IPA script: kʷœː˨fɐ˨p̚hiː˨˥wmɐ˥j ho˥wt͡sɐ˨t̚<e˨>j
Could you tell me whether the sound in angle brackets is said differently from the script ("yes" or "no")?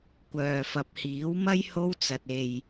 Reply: no